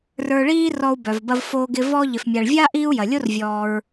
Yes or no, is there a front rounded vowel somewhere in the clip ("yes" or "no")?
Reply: yes